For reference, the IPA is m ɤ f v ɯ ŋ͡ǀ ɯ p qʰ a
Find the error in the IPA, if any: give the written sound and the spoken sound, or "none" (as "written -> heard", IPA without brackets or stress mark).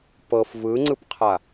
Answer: m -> p